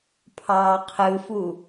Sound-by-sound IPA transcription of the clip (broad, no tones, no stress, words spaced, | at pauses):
pʰɑːqʰɯfu